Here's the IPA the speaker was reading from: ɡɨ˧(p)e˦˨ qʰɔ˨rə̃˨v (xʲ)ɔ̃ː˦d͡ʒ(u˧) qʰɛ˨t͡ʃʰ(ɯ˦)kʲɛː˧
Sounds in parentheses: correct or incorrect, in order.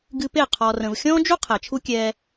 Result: correct, correct, incorrect: u˦, incorrect: u˦

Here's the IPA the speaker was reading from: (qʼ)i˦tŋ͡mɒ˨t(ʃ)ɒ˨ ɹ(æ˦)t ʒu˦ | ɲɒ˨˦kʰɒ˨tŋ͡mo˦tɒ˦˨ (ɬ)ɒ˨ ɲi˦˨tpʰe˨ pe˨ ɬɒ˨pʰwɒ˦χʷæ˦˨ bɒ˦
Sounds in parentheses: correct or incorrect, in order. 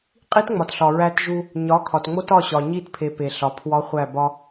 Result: correct, incorrect: ɬ, correct, incorrect: ɕ

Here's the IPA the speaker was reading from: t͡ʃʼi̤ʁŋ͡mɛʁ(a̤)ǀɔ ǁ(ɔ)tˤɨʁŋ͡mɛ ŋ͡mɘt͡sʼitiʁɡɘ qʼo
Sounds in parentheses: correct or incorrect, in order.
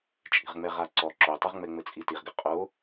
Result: incorrect: a, incorrect: o

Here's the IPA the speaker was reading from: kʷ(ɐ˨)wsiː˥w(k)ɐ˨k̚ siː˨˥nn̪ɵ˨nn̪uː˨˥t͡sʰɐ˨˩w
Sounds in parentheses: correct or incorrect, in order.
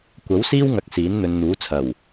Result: incorrect: ɐ˨˥, incorrect: ŋ

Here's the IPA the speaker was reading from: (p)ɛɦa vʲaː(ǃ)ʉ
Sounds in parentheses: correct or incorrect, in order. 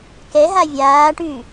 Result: incorrect: k, incorrect: ʈ

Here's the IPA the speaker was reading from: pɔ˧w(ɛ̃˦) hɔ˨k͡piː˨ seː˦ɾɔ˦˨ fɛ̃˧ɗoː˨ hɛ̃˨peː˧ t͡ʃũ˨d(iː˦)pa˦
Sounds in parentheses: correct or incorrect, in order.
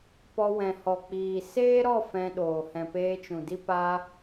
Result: incorrect: ɛ̃˨, incorrect: i˦

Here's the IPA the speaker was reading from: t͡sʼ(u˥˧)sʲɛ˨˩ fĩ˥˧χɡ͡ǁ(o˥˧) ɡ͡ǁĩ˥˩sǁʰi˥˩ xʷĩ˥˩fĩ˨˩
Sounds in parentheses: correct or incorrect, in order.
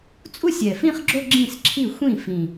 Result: correct, correct

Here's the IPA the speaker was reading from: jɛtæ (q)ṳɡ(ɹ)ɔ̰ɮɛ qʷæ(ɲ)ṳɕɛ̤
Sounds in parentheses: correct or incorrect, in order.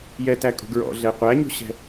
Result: incorrect: kʼ, correct, correct

